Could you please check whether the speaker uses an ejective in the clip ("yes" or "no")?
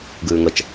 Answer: no